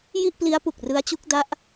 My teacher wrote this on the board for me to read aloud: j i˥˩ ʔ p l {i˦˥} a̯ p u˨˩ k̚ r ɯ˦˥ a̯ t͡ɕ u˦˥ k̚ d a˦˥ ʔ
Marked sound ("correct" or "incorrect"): correct